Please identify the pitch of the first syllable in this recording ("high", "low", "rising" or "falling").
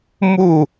falling